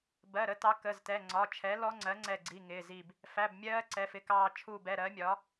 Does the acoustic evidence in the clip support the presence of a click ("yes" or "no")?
yes